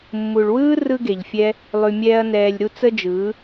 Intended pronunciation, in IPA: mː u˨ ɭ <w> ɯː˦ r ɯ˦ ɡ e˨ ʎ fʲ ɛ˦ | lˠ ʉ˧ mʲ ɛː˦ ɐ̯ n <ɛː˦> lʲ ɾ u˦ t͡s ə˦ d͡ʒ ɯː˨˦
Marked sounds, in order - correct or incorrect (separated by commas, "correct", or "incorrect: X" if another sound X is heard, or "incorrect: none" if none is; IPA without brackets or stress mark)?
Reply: correct, incorrect: ɛː˧